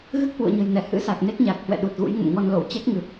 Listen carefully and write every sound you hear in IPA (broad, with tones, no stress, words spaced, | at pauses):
ɣɨ˦˥k̚hwṵ˧˨ə̯ɲə̤˨˩jnɛ˧˩ hɨ̰˧˥sa˨˩k̚ ne˦˥k̚ɲa˨˩k̚ hwɛ̰˧˨ɗu˨˩t̚ɣṵ˧˥j ŋə̰˧˨mŋɔ˧nlo˧˩w t͡ɕɛ˦˥k̚ŋɨ˨˩p̚